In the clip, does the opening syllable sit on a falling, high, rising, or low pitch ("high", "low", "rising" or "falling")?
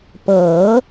rising